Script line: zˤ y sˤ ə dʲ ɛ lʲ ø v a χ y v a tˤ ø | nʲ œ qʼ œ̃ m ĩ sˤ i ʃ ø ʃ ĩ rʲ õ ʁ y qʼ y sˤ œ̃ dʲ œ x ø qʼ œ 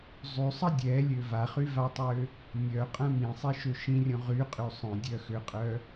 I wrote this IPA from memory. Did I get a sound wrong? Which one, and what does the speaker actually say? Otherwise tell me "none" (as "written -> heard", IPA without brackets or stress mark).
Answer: none